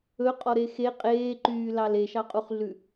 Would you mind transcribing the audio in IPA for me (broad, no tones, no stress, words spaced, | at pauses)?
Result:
ɵqʼɔɾe xe qʼeːǃyːlɑl eʃɑqʼuχɮʉ